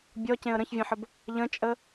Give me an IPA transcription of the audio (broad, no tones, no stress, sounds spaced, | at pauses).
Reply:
bʲ ɔ c ẽ ə̯ ɾ ə̃ ç vʲ ẽ ħ ə b | ʎ ə̃ t͡ʃʼ ə